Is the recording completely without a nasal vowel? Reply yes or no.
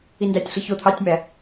yes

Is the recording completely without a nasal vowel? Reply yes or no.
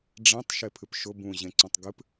no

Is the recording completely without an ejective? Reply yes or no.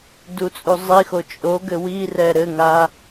no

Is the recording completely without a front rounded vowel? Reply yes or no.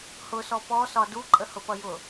yes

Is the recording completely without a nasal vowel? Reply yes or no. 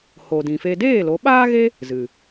no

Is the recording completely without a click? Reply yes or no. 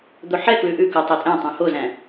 yes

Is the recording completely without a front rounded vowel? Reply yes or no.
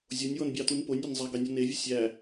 yes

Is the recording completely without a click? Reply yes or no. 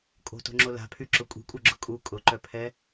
no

